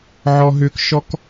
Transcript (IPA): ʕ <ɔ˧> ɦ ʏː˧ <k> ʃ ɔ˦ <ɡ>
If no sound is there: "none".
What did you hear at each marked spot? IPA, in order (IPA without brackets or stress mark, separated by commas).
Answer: ɔ˧, k, k